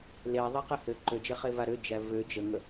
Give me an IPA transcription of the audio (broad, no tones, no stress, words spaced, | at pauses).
leðˤɛqə hɘ ǃød͡ʒeχeva ɾød͡ʒæ vø d͡ʒəŋə